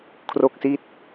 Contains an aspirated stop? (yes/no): yes